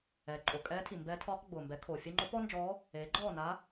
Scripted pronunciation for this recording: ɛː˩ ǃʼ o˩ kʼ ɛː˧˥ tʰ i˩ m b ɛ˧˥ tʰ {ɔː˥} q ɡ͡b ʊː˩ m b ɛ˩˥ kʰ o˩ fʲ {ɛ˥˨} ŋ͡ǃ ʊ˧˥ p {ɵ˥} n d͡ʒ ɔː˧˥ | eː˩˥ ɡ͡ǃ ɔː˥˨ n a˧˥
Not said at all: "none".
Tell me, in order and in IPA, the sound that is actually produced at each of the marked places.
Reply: ɔː˧˥, ɛ˥, ɔ˥

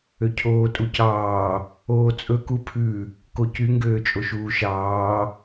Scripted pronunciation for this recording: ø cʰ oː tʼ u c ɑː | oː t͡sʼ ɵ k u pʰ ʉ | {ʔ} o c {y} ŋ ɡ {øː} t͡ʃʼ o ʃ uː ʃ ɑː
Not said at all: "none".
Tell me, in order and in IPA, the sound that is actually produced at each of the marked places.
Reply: k, y, øː

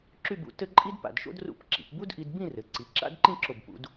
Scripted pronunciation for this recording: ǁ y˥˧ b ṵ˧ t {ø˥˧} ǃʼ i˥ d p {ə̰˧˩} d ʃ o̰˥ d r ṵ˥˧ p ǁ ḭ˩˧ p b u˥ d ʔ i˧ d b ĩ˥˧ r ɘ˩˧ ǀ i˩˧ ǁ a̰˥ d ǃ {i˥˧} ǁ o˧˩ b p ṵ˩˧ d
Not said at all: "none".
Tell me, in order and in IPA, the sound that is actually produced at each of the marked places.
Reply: ɘ˥˧, a̰˧˩, ĩ˥˧

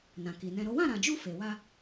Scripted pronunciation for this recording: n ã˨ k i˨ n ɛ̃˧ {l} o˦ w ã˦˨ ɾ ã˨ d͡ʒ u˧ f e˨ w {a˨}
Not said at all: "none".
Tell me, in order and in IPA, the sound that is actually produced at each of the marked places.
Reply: ɾ, a˧

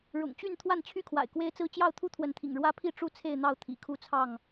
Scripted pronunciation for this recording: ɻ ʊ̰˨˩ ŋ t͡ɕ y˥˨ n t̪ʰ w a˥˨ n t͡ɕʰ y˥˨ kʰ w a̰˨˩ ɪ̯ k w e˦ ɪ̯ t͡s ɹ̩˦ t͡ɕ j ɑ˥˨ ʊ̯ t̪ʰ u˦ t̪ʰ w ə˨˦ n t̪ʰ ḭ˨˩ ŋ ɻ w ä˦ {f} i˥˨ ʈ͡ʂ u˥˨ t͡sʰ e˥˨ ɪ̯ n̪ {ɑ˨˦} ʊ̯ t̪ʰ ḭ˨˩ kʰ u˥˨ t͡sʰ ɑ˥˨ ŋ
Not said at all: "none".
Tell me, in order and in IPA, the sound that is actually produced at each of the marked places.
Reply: pʰ, ɑ˥˨

